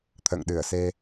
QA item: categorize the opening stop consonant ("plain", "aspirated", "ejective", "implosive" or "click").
aspirated